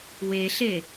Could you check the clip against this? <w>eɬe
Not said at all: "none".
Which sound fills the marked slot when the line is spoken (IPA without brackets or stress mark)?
w